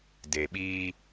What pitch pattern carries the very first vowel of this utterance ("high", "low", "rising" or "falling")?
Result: low